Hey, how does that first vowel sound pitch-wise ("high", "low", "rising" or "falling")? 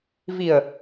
low